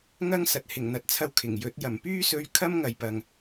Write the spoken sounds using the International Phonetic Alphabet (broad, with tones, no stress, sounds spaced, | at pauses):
ŋ ɐ˥ ŋ s ɐ˨ t̚ h ɪ˨˩ ŋ n̪ ɐ˨ t̚ t͡sʰ ɐ˧ w kʰ ɪ˨˩ ŋ j ɵ˨˥ t̚ j ɐ˨˩ m p yː˥ s ɵ˧ ɥ kʰ ɐ˥ m ŋ ɐ˨ j p ɐ˨ ŋ